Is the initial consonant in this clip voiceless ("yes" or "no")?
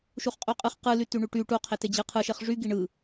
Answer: yes